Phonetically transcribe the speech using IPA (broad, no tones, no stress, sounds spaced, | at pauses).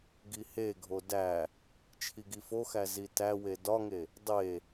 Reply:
ɡ i h e ɡʱ o d æ | t͡ʃʰ i ɡ i f o x æ z i t æ w e d ɒ ŋ e | dˤ e